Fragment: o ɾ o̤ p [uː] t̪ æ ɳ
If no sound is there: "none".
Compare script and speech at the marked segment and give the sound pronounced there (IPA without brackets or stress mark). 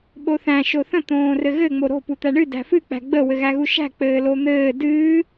u